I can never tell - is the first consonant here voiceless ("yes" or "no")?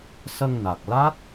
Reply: yes